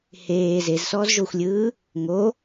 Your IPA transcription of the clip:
h eː z e z s ɔː z ʒ o xʷ lʲ ɯː | ŋ o

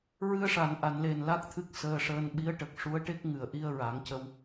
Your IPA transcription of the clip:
ɹ ɨ˧ ə̯ ʂ a˨˩˨ n ʔ a˨˩˨ n l e˨˩ n l a˦˥ k̚ t̪ʰ ɨ˦˥ k̚ s əː˧ ʂ əː˧ n ɓ i˧˥ ə̯ ʈ ə˨˩ k̚ ʂ u˧˥ ə̯ ʈ e˦˥ k̚ ŋ ɨ˨˩˨ ə̯ ʔ i˧ ə̯ ɹ a˨˩˦ ŋ c ə˧ w

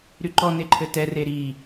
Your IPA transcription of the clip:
ɾ y ǃ ɔ n e ǃʰ ɘ t ɛ r e ɾ i

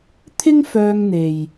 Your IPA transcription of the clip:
t̪ʰ ɪ˥ ŋ f œː˧ ŋ n̪ e˨ j

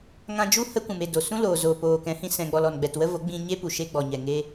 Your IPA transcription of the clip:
ŋ ã˧ d͡ʒ u˦ h ə˦ kʷ ũ˨ m e˦˨ d o˨ s ũ˦ l oː˨ z oː˨ p oː˨ k ɛ̃˨˦ h ĩ˧ s ɛ̃˧ ɡ͡b ɔ˧ l ɔ˨ n ɡ͡b ɛ˨ t w ə˦ v o˨˦ ɡ͡b ĩ˧ ɲ e˦ p u˨ ʃ e˧ ɡ͡b ɔ˨ ɲ ɛ˨ ŋ e˦

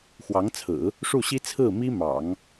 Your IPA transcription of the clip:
x w ɑ˧˥ ŋ t͡sʰ ɹ̩˨˩˦ | ʂ u˥˩ ɕ i˥ t͡sʰ ɹ̩˥˩ m i˥ m ɑ̰˨˩˦ ŋ

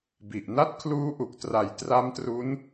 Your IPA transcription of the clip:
b i˨˩ ʔ n a˥˩ t̚ kʰ l uː˦˥ ʔ u˨˩ k̚ t r a˩˦ j t r a˦˥ m t r u˦˥ n

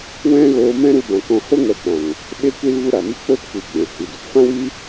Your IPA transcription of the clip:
w ɛ̃˦ ɣ oː˧ m ɛ̃˦ ɾ u˧ b ã˨ k ɔ̃˧ h o˦ ŋ ɛ˨˦ k͡p ã˨ ŋ | ɓ e˦ kʷ i˦ l v u˦ ɾ a˨ m i˦ k͡p o˦ t kʷ i˨ ɡ͡b ɛ̃˨ h i˨ d u˨ p f ã˦ w i˦

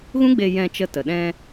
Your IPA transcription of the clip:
ɣ ũ˦ ɡ͡b e˧ j ɛ̃˧ t͡ʃ ə˧ t ə˨ ɗ ɛ̃˧

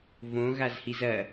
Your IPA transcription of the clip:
v õ ɣ a z h i z ɐ

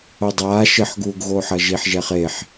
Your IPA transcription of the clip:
o dˤ aː ʃ ɘ ħ ɡ uː ɡ ɣ o ħ ɐ ʒ i ħ ʒ ɛ χ e ħ

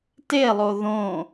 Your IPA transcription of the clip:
t e lˠ o ð õ

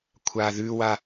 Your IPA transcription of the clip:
kʷʰ a ð ʉ w a

